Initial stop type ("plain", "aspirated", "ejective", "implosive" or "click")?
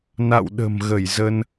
implosive